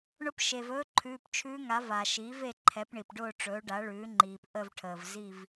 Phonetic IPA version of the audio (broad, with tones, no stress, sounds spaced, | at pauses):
ɳ ʊ˧˥ p ʃ eː˩ v ɵː˧˥ ǃʰ ʉː˩˧˩ p t͡ʃʰ ʉː˧˥ ŋ a˩˥ v a˩ ʃ iː˩˥ v e˦˨ ǃʰ ɛ˩˥ p ɳ i˩ p ɖ ʊː˦˨ ʈ͡ʂ ɵː˩˥ ɖ a˩˥ ɭ ʉː˩˥ ŋ͡ǃ iː˩ p ʔ ə˦˨ v ʈʰ əː˩ v z i˦˨ v